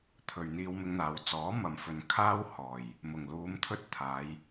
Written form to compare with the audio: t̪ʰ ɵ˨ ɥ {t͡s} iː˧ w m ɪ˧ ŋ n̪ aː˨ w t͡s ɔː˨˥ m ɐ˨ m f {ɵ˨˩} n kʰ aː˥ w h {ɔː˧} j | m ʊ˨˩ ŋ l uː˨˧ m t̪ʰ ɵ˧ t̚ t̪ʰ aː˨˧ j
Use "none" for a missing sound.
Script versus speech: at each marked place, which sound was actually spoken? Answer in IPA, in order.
n̪, ɵ˨, ɔː˨˩

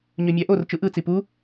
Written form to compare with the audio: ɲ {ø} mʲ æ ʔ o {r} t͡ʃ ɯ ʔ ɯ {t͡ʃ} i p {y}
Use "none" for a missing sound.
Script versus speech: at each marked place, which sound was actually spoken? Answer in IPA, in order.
ø, r, t͡s, u

